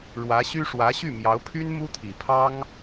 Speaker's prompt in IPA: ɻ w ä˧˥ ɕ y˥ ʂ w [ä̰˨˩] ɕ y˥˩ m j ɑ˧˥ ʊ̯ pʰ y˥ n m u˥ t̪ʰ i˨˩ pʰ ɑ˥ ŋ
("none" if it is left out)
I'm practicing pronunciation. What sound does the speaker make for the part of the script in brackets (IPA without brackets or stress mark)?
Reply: ä˧˥